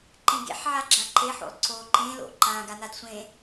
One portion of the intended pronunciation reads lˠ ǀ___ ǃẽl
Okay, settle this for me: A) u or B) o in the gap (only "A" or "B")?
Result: B